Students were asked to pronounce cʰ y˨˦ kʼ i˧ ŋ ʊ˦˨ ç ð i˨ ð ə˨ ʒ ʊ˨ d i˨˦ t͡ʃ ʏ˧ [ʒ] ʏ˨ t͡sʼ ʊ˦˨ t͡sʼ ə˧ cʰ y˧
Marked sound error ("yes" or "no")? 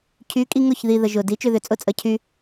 yes